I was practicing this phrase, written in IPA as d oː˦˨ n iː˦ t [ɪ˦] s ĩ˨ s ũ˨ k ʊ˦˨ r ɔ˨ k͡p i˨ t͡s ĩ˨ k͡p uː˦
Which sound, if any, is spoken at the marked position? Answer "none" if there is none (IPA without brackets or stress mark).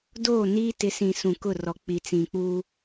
ɪ˨˦